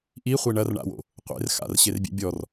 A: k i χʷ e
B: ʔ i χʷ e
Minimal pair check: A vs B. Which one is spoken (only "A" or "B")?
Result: B